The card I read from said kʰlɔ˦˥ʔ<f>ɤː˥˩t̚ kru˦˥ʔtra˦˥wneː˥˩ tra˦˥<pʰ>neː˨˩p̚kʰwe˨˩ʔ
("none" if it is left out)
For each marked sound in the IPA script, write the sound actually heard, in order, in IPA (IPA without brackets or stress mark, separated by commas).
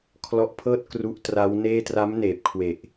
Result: pʰ, m